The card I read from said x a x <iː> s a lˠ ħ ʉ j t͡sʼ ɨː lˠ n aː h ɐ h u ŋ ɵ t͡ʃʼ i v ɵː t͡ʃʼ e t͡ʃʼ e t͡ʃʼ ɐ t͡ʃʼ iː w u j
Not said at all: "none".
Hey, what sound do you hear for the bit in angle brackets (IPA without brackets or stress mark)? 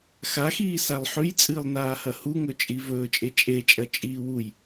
iː